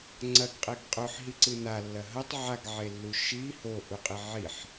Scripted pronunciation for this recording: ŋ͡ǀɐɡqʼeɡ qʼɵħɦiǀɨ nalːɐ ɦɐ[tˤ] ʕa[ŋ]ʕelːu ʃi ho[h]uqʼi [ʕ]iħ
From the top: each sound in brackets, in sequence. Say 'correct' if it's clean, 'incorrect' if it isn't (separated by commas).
correct, incorrect, incorrect, correct